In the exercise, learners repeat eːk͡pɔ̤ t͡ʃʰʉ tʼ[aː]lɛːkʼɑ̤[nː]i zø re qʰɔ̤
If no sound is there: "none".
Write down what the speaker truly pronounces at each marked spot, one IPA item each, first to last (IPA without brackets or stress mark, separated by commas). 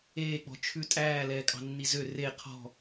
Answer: æː, nː